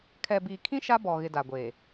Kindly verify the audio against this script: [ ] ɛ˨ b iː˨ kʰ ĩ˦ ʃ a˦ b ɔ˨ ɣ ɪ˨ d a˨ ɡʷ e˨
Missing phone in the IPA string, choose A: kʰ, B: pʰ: A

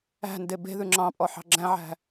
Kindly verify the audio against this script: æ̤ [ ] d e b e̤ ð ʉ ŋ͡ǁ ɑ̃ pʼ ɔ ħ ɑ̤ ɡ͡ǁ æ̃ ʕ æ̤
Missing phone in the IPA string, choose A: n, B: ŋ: A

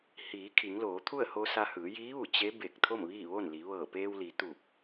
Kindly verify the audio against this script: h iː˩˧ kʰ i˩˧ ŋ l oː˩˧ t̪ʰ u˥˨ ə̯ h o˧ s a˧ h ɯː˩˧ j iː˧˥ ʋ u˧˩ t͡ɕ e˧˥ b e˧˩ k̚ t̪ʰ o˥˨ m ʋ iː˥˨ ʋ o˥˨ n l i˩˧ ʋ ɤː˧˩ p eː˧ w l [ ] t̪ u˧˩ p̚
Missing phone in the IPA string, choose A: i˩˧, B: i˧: A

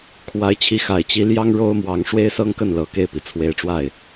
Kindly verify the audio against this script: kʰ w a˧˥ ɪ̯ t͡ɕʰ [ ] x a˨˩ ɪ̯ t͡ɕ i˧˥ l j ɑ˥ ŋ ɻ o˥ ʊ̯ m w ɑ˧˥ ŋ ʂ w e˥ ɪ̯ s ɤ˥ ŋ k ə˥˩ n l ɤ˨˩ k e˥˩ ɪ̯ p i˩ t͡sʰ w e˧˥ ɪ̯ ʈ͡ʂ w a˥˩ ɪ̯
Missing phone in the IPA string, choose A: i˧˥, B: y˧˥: A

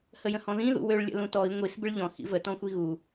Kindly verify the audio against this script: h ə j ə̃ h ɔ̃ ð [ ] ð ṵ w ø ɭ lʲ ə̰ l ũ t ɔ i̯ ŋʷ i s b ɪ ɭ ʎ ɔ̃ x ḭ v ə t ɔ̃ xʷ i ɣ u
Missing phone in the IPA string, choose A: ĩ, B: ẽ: A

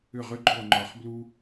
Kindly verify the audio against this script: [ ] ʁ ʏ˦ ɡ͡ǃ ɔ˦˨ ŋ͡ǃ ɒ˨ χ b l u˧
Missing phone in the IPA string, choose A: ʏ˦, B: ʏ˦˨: B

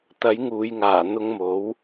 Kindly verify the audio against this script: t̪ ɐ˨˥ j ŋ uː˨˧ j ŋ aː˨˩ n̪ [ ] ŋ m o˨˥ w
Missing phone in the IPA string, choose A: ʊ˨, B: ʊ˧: B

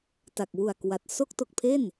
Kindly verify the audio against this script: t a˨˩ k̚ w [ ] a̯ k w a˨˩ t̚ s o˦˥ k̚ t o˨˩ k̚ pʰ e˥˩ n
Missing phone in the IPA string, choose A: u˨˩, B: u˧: A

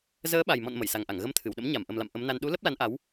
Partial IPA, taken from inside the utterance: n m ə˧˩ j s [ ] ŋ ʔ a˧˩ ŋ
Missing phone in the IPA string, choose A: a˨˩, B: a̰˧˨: A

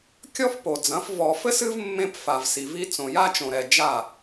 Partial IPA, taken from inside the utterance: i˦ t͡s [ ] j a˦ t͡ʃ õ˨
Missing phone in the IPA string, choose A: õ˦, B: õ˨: B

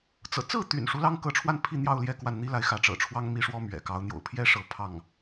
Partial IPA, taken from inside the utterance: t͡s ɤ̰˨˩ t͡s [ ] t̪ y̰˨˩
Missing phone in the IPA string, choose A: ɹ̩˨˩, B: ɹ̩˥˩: B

